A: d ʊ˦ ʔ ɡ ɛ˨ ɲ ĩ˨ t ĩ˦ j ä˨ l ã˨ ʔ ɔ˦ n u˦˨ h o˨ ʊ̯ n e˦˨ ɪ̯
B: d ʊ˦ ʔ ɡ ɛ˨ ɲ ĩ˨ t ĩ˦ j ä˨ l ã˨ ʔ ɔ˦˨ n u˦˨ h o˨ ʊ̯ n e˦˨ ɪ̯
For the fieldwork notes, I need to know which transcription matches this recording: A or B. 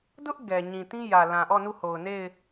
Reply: B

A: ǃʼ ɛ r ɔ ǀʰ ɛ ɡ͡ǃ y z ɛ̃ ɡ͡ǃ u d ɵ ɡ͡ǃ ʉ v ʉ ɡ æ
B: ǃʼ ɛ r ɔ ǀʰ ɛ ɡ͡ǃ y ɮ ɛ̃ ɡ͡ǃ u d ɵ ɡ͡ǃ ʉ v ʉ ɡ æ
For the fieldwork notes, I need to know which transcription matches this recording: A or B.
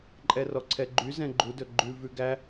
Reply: A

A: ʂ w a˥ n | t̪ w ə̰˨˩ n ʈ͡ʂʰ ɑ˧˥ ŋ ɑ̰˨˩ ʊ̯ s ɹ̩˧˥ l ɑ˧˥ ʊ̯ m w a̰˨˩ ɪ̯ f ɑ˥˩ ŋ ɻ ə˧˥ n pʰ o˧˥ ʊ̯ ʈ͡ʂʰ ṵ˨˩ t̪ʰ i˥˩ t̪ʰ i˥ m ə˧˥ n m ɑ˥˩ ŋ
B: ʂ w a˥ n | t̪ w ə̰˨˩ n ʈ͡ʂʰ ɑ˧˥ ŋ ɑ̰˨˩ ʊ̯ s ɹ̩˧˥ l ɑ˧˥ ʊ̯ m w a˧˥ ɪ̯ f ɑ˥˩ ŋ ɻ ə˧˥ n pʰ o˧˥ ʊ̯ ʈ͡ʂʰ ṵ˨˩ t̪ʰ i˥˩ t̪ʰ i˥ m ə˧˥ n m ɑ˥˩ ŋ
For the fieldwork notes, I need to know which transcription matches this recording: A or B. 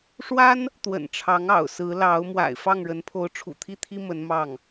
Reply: A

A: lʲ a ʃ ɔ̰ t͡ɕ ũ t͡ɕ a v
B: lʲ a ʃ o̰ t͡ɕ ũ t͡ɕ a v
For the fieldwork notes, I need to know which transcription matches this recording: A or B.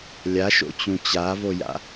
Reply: B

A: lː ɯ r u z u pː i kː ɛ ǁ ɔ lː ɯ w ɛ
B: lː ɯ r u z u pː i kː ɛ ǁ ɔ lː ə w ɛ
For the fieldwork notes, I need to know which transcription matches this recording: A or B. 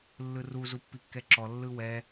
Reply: A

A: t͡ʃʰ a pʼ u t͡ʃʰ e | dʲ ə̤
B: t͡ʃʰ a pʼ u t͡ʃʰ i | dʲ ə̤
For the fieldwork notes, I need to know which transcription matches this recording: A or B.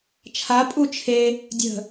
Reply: A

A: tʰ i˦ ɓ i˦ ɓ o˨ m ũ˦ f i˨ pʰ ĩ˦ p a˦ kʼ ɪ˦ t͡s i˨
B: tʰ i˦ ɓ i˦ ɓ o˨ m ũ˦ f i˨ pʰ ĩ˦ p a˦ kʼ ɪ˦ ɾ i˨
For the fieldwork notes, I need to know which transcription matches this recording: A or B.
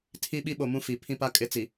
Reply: A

